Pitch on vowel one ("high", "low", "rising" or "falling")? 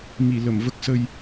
low